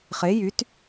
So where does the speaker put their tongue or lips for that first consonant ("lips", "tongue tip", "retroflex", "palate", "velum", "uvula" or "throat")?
uvula